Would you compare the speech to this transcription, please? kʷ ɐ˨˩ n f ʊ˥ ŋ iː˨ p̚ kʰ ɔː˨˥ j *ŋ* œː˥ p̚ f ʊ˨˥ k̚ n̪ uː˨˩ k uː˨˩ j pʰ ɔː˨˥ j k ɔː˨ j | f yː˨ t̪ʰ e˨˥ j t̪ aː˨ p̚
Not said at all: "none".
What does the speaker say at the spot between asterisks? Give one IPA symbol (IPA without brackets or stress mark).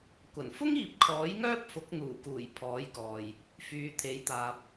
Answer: ŋ